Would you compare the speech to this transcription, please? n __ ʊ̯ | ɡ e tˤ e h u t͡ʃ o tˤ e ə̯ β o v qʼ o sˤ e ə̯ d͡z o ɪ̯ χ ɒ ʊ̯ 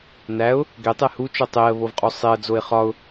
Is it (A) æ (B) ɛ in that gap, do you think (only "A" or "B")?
A